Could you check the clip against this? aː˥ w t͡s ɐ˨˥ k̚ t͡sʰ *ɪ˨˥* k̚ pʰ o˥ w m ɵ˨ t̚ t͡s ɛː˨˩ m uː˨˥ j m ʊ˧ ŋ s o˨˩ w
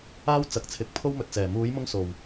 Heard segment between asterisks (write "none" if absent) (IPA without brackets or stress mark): ɪ˨˥